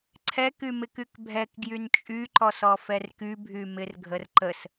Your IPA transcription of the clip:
ǀʰ ɛ k y m ɪ k y k bʱ ɛ k ɡ j y n t͡ʃʼ y ǃ ɔ s ɔ f ɛ r k y bʱ y m ɪ r ɡʱ ə r ǃ ə s

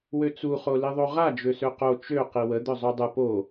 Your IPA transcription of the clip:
w ø t͡s u χ o l i ðˤ o ʁ a d͡ʒ ø s ø q o t͡ʃ ø q i w ə d̪ œ zˤ o dˤ ə p o

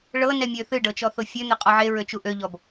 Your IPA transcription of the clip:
ɭ ɤ n ɛ mʲ ø θ ɨ ɖ ɤ t͡ʃ ɔ θ o fʲ ø n̪ e qʼ ɔ ʕ e ɹ ø t͡ʃ u ʔ ø ʎ ɔ b

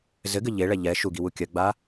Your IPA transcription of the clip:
z ɘ ɡ ɘ ʎ e ɭ ɛ ʎ ɛ ʃ u ɡ i w u kʲ ɐ ɡ͡b a

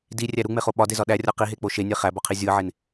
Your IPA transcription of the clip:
d i rʲ æ ɾ u ŋ͡m e χ o ɓ ɒ d e z ɒ ɗ æ rʲ ɒ q i ɦ e k͡p o ʃ e nʲ e χ æ b ɒ qʰ i zʲ u ə̯ ʕ e n

